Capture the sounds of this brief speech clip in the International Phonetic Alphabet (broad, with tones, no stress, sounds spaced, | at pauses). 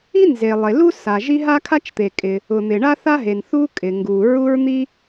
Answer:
i˥ n z e˩ lˠ e˩ l u˥ s a˩ ʒ i˥ ɦ a˥ kʰ a˥ t͡ʃ t̪ e˩ kʼ ɪ˩ | ʊ˩ n̪ ɪ˩ ɳ a˥ θ a˥ ɦ e˩ n θ u˥ kʼ ɪ˩ ŋ ɡ u˩ ɹ u˥ ɹ n̪ i˥